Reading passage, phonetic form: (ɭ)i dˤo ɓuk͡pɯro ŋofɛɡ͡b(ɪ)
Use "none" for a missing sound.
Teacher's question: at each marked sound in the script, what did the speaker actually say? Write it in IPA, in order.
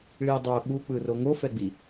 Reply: ɭ, i

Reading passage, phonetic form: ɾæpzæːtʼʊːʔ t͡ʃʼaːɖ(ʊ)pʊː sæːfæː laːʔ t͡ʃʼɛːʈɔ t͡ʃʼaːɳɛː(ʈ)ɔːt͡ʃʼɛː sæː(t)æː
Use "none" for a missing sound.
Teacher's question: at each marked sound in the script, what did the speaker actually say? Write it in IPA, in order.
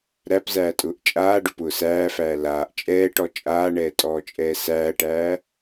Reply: ʊ, tʼ, ʈ

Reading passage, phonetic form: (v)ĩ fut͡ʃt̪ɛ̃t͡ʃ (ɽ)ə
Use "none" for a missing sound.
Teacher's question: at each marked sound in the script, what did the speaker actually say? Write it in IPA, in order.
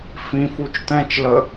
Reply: f, l

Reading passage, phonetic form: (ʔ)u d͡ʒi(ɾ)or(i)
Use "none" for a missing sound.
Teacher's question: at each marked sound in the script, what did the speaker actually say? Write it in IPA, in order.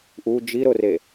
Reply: ʔ, ɾ, e

